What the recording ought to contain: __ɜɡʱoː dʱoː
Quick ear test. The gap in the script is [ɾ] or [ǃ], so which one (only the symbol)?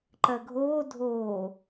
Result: ǃ